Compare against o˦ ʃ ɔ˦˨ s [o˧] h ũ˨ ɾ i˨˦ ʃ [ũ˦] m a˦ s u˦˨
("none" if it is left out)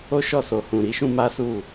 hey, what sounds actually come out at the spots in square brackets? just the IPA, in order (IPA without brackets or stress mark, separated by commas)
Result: o˨, ũ˦